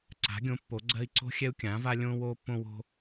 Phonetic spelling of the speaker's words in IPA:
ǀ a̤˩˥ ɡʲ õ˩˥ pː o˩˥ ɡ͡ǀ ɜ˥ i̯ ǀ o̤˥ xʲ ɛ˥ u̯ kʲ ãː˩˥ v a˥ lʲ õː˥ w oː˥ pː õ˥ w o̤˥

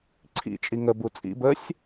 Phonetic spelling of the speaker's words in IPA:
ǀʰ ḭ t͡ʃʼ i ŋ ə b u t͡sʼ ḭ b ə sʲ

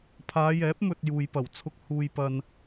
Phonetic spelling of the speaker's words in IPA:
pʰ aː˨˧ j ɛː˨˥ p̚ m ɵ˨ t̚ j uː˨ j p ɐ˨˩ w t͡sʰ ʊ˧ k̚ h uː˨ j p ɐ˨ n

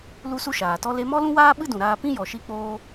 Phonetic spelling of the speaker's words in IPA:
l u˦ s u˦ ʃ aː˨ t ɔ˦ l e˧ m ɔ˦ l ũ˦ w aː˦ ɓ ɨ˦ d ũ˨ ɾ aː˧ p ĩ˦ j ɔ˨ ʃ i˧ k͡p oː˧

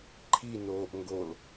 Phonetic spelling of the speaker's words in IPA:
ǃʰ i n oː ʔ ŋ ɡ o l

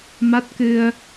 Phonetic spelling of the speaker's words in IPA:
m a˦˥ t̚ k ɨ˧ ə̯

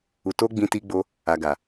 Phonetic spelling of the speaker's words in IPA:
u˨ t o˧ ɡ͡b ĩ˧ t i˧ ɡ͡b o˧ | a˨ ɡ a˨

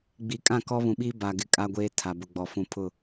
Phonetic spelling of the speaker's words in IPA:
ɡ͡b i˨ kʼ ã˦˨ k ɔ˦ β ũ˨ ɓ iː˦ b a˨ ɡ ɪ˦ kʼ a˦ ɡʷ eː˦ tʰ a˨ b ʊ˨ ɡ͡b ɔ˨ f ũ˨ pʰ ʊ˦˨

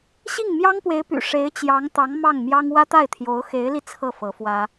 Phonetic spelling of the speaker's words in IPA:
ɕ i˥˩ ŋ m j ɑ˥ ŋ p w e˧˥ ɪ̯ p y̰˨˩ ʂ e˧˥ ɪ̯ t͡ɕ j ɑ˧˥ ŋ t̪ ɑ˧˥ ŋ m ɑ˥˩ ŋ m j ɑ˥ ŋ w ä˥ t̪ a˥˩ ɪ̯ t̪ʰ j o˧˥ ʊ̯ x e˧˥ ɪ̯ l i˧ t͡sʰ ɤ˥˩ f ɤ˧˥ f w ä˥

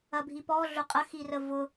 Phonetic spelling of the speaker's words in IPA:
ɐ bʱ i p ɔ ɮ ʊ qʼ ɐ x i r ə v ʊ

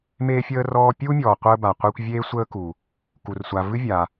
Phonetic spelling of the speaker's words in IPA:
m eː˥ fʲ əː˥ r ɔː˦ pʲ u˥ mʲ ɔː˨ qʷ əː˦ b a˨ qʷ e˦ kʷ vʲ eː˦ sʷ əː˥ k u˩ | k u˨ r sʷ a˨ v ɨ˥ vʲ a˨

